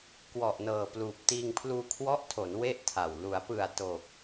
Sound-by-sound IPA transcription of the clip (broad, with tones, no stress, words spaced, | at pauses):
kwɔ˨˩ʔnɤː˨˩pluː˨˩p̚ tiː˧ŋpʰluː˧kʰwɔ˦˥ʔtʰo˩˦n we˥˩ʔtʰa˨˩w lu˩˦a̯pɯ˨˩a̯ to˨˩k̚